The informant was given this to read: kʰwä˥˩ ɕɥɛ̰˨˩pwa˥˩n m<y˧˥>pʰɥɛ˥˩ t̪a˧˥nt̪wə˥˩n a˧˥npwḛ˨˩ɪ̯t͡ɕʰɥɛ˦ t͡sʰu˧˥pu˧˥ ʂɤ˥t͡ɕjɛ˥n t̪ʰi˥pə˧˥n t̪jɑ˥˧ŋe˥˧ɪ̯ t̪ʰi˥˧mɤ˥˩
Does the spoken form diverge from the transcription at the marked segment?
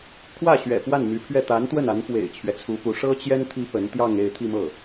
no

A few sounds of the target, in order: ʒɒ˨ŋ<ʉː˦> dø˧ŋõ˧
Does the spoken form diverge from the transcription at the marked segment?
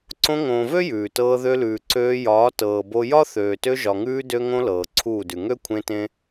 yes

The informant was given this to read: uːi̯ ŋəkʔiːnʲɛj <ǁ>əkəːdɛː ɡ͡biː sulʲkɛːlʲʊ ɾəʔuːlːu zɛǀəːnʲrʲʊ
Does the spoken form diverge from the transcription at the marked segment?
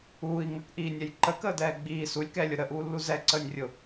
yes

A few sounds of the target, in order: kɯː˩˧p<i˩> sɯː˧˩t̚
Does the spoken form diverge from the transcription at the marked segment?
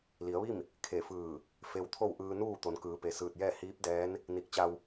yes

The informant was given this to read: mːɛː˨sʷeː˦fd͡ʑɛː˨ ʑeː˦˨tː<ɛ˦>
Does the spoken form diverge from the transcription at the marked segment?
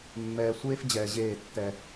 no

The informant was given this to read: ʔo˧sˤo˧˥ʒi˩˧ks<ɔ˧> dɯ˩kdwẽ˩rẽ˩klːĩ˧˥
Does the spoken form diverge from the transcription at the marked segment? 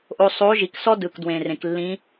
yes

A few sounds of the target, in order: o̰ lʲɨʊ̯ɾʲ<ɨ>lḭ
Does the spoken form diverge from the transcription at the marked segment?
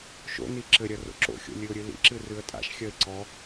no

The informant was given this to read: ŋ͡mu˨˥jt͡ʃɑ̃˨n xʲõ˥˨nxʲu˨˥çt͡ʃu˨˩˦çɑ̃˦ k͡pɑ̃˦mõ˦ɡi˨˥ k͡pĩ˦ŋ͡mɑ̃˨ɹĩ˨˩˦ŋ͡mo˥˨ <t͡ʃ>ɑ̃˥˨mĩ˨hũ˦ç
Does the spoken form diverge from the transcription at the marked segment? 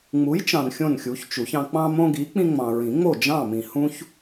yes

